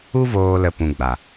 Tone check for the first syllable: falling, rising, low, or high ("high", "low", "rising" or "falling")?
high